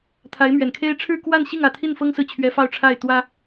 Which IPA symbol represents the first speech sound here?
t̪ʰ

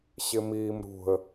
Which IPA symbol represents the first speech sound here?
ɕ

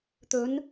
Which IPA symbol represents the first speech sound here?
t̪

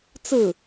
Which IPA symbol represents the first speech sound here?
t͡s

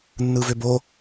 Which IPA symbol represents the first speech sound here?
nː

